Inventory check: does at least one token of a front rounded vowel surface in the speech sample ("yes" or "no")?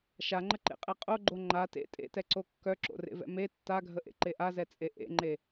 yes